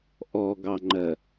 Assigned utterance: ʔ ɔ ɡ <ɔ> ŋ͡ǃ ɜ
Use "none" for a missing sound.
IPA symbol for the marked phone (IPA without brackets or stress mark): ɑ